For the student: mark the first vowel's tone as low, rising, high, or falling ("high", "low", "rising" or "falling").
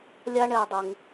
high